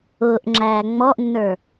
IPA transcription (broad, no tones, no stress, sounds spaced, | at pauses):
ʊː ʔ ŋ͡ǁ æː ŋ͡m ɔ ʔ nː ə˞